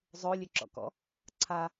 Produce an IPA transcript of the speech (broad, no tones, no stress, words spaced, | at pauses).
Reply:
zˤo lʲøǁɔ̰kɔ̰ | ǀʰa